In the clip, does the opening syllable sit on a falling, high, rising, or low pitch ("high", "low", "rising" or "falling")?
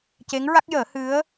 rising